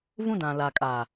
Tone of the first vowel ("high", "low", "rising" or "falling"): high